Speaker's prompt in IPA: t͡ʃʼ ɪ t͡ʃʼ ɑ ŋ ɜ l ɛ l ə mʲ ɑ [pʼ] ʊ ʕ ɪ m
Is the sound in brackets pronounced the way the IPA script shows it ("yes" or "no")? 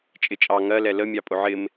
yes